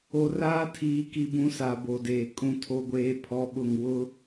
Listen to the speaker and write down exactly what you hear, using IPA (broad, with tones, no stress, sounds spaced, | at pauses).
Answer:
o˨ r aː˦ tʰ iː˨ k i˨ b ũ˨˦ s a˨ b o˨ d eː˨ kʼ ũ˦ tʰ o˦ ɡʷ eː˦ pʰ ɔ˦ ɓ ʊ˦˨ ŋ w ʊ˦